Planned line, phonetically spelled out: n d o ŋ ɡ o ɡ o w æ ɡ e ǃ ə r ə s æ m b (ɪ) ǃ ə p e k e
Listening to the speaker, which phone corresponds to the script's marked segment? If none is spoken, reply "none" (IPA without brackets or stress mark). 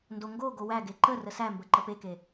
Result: ə